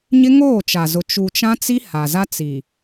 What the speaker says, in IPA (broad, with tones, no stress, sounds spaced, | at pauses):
ɲ ɪ˦ ŋ oː˦˨ t͡ʃ a˨ z ʊ˨ t͡ʃ u˨ t͡ʃ ã˦ t͡s i˦ h a˨ z a˦ t͡s i˨